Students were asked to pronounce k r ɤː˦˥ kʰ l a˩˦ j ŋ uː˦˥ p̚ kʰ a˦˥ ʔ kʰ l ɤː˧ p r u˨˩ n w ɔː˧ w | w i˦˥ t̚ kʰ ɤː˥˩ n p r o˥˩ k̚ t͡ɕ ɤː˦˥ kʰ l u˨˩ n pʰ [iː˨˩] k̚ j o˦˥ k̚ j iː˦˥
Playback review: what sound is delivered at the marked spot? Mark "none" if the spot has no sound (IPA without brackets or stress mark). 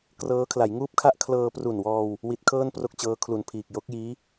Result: iː˨˩